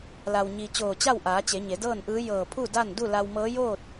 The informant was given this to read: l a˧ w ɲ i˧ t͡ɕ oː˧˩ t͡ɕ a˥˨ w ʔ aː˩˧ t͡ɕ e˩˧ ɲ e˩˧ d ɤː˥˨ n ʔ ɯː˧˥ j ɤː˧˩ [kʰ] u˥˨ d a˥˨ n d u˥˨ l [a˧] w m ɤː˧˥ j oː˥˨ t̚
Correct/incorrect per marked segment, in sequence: incorrect, correct

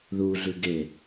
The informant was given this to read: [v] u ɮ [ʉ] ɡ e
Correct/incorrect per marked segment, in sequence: incorrect, correct

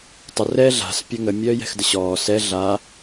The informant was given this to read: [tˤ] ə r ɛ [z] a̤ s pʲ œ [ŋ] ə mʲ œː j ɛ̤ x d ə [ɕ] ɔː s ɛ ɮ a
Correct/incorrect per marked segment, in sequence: correct, incorrect, correct, correct

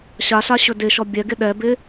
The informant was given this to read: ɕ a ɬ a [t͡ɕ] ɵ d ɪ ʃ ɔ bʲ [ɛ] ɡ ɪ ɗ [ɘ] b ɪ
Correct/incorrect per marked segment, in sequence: incorrect, correct, incorrect

